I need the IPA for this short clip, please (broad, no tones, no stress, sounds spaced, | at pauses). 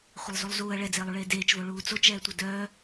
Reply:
χʷ ʌ lˠ z u lˠ z uː ɐ̯ ɭ ɛ d͡z eː lˠ u ɭ eː d eː t͡ʃ v o ɭ uː t͡s o t͡ʃ ɛː tʷ ʌ d œː